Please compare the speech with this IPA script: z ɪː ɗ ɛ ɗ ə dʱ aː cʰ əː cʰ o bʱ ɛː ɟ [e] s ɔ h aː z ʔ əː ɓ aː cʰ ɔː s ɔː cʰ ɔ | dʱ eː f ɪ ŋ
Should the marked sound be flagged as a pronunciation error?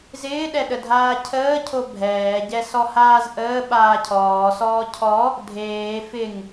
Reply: yes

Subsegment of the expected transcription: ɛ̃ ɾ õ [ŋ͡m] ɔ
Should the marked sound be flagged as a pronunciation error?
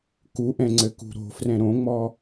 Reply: no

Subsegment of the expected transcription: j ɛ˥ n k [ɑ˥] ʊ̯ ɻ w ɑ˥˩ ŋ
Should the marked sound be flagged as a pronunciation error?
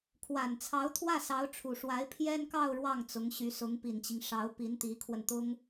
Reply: yes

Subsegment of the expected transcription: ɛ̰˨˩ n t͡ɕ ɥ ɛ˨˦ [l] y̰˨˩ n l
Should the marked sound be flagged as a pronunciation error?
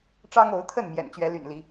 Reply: no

